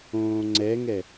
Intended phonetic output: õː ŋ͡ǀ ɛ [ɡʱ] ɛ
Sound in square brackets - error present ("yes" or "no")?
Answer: yes